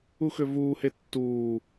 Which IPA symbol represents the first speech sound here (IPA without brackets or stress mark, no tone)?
u